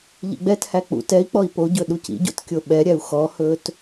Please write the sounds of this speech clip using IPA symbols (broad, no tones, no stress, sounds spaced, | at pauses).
ʎ ḭ ɡ͡b ɛ t h æ k͡p ṵ t ɛ i̯ k͡p ɔ i̯ p o ɟ ɵ ɗ u c ḭ ɟ o̰ t kʲ o ɓ ɛ ɾʲ æ u̯ x ɔ h ɵ t